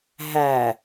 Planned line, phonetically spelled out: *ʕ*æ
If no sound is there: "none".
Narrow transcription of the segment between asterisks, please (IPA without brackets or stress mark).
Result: ɦ